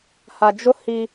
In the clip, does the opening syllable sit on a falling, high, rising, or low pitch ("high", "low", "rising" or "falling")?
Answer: low